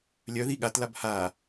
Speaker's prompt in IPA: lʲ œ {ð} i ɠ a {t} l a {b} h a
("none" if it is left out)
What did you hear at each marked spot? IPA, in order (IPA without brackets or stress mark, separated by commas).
ð, t, b